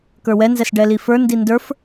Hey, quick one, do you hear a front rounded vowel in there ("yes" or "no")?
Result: no